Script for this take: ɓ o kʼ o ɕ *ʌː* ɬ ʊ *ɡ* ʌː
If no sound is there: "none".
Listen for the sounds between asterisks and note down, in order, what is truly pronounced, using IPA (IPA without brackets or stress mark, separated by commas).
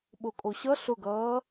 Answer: ʌ, ɡ